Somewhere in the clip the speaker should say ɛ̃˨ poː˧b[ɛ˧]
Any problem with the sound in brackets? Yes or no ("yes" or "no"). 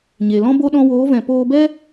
yes